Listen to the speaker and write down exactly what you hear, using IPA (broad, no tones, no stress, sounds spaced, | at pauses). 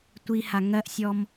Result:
tʷ i h a ŋ ɜ ʔ sʲ ɔ m